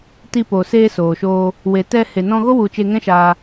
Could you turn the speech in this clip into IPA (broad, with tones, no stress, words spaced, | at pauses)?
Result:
ti˧poː˨ seː˧soː˨ʃoː˧ | we˨ tɛ˧ he˨nɔ̃˧ɣo˦ wu˧ t͡ʃe˧ŋɛ̃˦ʃaː˧